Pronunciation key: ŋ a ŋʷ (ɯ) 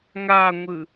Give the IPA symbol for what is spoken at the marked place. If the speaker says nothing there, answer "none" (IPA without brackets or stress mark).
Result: ɯ